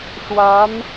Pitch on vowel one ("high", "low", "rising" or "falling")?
rising